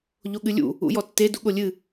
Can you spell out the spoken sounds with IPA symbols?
ʎoɠɨlʲṵ | ṵjɔtːe duɠolʲɨ

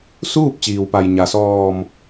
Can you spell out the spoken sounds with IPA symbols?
suː˥˨p̚t͡ɕiː˩wpa˩j ɲa˩sɔː˧˩m

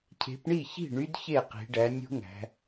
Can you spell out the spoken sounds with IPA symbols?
cʰe̤˨˦pɳi˥˩çi̤˥˩ ɳy˦˥dçe˥˩qi̤˨˦ɖæ˨˦ nʲṳ˦˥ŋæ̤˨˦

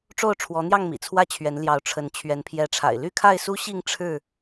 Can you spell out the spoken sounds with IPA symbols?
ʈ͡ʂo˥˨ʊ̯ ʈ͡ʂʰwɔ˨˦n̪jɑ˥˨ŋ mḭ˨˩t͡sʰwä˥˨t͡ɕʰɥɛ˨˦n ljɑ˨˦ʊ̯ ʈ͡ʂʰə˨˦n t͡ɕʰɥɛ˨˦npʰjɛ˨˦ʈ͡ʂʰa̰˨˩ɪ̯ ly˥˨kʰa˥˨ɪ̯su˦ɕi˥˨ŋ ʈ͡ʂʰɻ̩˥˨

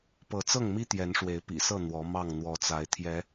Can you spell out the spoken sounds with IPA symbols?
pɤ˨˦t͡sɤ˥˨ŋmi˦ t̪jɛ˨˦nʂwe˨˦ɪ̯pḭ˨˩sɤ˥˨ n̪wɔ˨˦ mɑ˥˨ŋn̪wɔ˨˦t͡sa˨˦ɪ̯t̪ʰjɛ˨˦

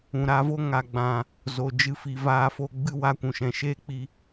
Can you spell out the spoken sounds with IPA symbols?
ũ˨ɾa˧vo˦ ŋa˨ɡ͡bã˨ | zo˨d͡ʒɨ˧ fi˨vaː˧fo˧ ɡ͡bɨ˦wa˧kʷũ˨ ʃɛ̃˨ʃeː˦k͡pi˧

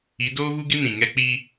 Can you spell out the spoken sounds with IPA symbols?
i˨˦doː˦ɣu˦ɡɪ˦ nĩ˨ŋɛ˦ k͡pi˦

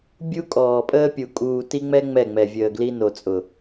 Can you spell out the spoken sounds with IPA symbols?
bʲu˦kʼɔː˨pʼəː˦pʲu˨ kʼuː˨ti˦ŋ͡mɛ˦ ŋ͡mɛ˦˨ŋ͡mɛ˨vʲəː˨ɡli˦ no˨t͡sʼʊ˨

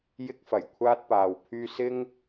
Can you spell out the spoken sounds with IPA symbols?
jɪ˥k̚fɐ˨˩j kʷʰaː˥t̚paː˨wpʰyː˥ sɪ˥ŋ

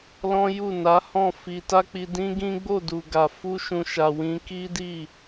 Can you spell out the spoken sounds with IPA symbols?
lɔ̃˦ju˦˨ na˨˦hɔ̃˦˨ fi˧ ta˦k͡pi˧ dĩ˦ɡĩ˦ɡ͡bo˦˨ du˨ɡa˨ fu˧ʃũ˨ʃa˨ wĩ˧ki˦di˦˨

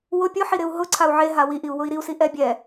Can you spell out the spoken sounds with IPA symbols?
wʊ pʲʊħiɾɪu̯ ɦʊǀʰau̯ ʕeɦa wiʔiu̯wʊi̯ ɾiu̯siʔɛ bʲɛ

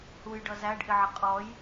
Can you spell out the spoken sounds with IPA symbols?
hujɖʌ zæɖʔɪʕə qʼɔj

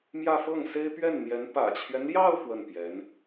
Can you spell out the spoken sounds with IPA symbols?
mjä˥˧fɤ˥˩ŋse˥ɪ̯ pɥɛ˥˩nn̪jɛ˧˥n pä̰˨˩t͡ɕʰɥɛ˦nljɑ˥˧ʊ̯ fwə˥˩npjɛ˧˥n

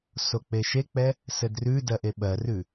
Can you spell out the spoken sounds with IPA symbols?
sok͡peʃek͡pɛ | sɘdrʉdɜʔ eɓɜrʉ

